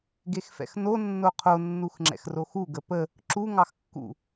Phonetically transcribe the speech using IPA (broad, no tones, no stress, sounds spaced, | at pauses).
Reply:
ɡ e x f ɛ̰ x n o nː o qʰ o nː u x ŋ͡ǁ ɛ̰ x r o x u ɡ ə p ə | ǁ u ŋ ɑ x kː ṵ